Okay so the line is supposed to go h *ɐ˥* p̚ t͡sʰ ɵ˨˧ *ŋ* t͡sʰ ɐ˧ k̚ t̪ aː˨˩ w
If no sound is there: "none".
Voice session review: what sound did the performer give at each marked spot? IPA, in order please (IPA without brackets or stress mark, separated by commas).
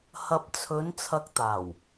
ɐ˨, n